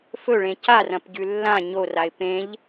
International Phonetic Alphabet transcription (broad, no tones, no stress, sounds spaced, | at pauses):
f ɵ ɭ ẽ c a r ɐ̃ p ɟ ʉ lː ã ɲ o r a ɪ̯ p ẽ ʎ